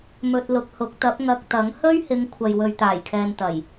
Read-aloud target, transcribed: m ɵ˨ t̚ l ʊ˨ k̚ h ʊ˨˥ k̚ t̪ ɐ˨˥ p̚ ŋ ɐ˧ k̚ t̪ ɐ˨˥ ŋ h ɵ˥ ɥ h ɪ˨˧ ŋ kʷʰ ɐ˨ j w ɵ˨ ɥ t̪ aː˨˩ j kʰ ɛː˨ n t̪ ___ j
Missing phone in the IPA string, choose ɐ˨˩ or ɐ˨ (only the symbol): ɐ˨˩